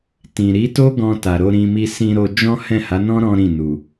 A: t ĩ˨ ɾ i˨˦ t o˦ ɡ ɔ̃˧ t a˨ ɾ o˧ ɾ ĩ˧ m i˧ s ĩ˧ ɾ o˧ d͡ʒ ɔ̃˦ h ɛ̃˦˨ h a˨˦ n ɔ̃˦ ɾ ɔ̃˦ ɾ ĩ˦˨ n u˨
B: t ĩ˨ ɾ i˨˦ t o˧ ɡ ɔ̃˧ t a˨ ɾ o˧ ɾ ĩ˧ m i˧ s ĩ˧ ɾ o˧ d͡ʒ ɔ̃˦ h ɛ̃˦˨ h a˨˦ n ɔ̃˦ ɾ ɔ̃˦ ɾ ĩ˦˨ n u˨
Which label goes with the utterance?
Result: A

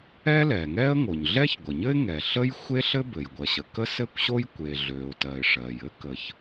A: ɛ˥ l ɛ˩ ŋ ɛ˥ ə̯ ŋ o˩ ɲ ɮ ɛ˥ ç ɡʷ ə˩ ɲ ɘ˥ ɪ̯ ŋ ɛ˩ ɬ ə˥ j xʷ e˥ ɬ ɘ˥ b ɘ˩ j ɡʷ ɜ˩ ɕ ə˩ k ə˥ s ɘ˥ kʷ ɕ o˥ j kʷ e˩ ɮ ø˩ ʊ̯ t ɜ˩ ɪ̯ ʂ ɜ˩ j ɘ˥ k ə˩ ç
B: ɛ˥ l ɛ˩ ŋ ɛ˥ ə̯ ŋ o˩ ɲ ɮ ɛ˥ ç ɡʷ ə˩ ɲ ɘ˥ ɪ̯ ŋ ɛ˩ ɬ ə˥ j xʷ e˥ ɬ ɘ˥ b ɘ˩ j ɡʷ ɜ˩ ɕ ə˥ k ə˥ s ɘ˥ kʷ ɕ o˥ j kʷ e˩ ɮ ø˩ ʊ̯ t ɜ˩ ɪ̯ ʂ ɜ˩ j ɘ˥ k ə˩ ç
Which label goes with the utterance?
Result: A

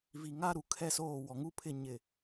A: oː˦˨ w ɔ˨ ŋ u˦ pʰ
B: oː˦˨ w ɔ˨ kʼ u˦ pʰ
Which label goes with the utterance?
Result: A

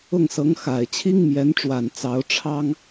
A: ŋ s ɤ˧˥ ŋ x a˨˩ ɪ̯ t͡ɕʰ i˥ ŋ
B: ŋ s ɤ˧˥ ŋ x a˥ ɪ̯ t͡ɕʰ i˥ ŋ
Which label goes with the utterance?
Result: A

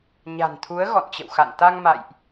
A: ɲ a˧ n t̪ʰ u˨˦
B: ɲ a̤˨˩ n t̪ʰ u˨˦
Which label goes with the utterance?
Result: B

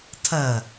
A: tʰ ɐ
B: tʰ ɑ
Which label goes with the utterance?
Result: A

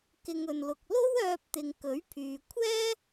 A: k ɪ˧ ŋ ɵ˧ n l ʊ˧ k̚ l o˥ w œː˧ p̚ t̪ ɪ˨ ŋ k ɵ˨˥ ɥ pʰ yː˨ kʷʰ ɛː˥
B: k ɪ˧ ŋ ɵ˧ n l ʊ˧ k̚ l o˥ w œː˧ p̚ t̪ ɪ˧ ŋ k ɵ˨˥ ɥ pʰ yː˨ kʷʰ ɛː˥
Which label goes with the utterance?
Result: A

